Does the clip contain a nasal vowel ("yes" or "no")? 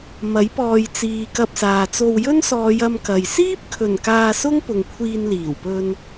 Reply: no